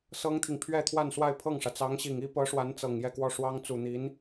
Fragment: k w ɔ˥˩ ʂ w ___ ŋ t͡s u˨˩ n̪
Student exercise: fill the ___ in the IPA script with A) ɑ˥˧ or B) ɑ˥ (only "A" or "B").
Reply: B